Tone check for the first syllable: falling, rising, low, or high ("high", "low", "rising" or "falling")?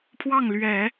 falling